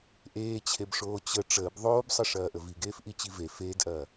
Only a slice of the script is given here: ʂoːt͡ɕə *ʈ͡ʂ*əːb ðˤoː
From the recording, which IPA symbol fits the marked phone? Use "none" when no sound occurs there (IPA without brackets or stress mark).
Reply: ʈ͡ʂ